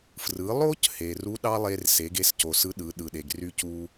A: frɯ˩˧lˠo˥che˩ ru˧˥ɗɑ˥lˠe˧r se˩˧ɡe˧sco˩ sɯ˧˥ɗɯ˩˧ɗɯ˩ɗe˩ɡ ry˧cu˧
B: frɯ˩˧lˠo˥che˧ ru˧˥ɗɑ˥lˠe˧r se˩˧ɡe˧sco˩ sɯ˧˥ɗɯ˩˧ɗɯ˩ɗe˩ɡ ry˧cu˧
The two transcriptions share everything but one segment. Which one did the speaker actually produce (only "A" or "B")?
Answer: A